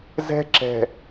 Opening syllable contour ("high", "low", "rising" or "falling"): high